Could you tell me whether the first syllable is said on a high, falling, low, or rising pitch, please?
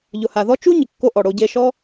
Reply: low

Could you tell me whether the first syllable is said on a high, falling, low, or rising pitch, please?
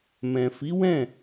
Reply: low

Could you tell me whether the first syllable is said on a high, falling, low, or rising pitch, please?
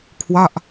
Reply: falling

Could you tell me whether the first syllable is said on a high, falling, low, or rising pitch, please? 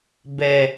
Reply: low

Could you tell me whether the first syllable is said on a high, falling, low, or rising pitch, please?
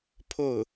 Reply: falling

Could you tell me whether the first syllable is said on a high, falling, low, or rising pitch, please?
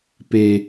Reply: low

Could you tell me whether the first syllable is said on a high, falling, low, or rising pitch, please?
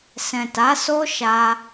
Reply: low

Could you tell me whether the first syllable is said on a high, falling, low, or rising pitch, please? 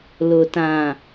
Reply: low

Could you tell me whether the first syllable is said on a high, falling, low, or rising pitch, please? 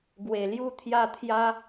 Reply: low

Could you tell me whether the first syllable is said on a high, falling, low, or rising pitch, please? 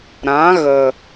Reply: rising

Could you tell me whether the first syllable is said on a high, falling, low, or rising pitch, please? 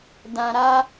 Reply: low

